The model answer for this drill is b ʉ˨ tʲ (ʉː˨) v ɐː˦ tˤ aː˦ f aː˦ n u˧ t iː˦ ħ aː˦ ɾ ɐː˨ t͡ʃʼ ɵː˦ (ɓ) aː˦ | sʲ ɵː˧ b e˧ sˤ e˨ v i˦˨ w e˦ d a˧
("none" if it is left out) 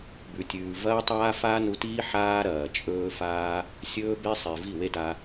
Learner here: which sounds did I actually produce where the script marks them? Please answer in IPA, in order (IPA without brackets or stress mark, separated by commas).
ʉː˨, f